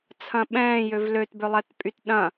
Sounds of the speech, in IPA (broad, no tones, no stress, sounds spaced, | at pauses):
t͡sʰ ɐ̃ ɓ ɛ̃ː j ø v l ø t b ʏ lˠ ɛ t pʼ y t ɗ ɐ̃